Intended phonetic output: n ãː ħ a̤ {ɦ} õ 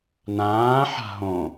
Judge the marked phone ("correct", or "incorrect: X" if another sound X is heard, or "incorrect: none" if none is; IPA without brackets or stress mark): correct